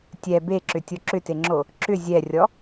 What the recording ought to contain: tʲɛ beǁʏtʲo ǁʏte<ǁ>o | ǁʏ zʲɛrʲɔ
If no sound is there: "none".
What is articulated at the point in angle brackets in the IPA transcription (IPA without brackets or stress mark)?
ŋ͡ǁ